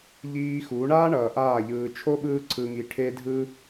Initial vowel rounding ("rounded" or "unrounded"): unrounded